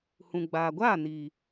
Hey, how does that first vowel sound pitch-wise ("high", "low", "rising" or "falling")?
low